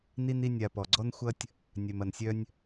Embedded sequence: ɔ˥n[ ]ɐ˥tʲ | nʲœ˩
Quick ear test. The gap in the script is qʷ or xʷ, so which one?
xʷ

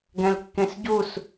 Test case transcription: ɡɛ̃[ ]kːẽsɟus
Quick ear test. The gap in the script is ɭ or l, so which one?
l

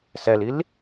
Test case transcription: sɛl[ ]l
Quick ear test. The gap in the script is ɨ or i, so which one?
i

